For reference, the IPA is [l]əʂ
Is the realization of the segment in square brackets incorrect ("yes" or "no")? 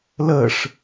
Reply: no